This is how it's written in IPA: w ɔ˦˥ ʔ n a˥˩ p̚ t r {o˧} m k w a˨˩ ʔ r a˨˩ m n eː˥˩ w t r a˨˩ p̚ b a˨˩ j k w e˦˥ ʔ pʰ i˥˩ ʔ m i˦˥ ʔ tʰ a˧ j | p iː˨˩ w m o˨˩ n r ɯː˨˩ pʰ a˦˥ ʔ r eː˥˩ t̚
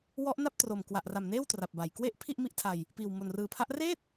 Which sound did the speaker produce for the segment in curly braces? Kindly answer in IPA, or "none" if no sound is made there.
o˨˩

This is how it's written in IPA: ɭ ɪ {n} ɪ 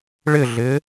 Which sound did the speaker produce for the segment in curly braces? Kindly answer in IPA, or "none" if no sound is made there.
ɮ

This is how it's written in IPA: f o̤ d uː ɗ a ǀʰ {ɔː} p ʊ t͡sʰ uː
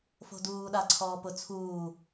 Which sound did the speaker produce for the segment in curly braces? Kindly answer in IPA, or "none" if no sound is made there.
ɔː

